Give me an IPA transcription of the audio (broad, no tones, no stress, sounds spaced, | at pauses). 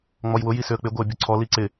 ŋ͡m ɔ j w ʊ j i s ʏ ə̯ k͡p ɪ ɡʷ ɪ ə̯ bʲ ʊ ǀʰ ɔ l i ǀ ɪ